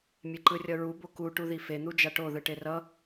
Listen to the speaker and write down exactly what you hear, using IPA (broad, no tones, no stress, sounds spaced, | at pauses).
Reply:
mʲ e ǃ ɯ rʲ ʌ ɹ u b o k u ʈ u ð i f e n̪ u d͡ʒ a ʈ o ð ɯ ʈ e r ʌ